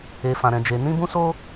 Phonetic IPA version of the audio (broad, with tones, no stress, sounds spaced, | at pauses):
e˧ f ã˧ ɾ ɛ̃˧ d͡ʒ e˧ n ĩ˦ b ũ˦ s o˦